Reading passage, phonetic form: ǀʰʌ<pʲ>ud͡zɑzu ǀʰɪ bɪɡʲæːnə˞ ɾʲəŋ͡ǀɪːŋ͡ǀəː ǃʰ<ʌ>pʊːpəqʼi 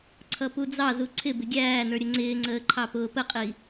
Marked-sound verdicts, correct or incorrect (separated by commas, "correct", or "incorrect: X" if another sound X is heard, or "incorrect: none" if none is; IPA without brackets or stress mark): incorrect: p, incorrect: ɑ